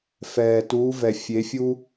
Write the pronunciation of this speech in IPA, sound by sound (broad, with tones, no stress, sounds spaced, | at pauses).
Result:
f ɛː˨ t uː˨˦ v ɛ˨ fʲ e˨˦ fʲ u˦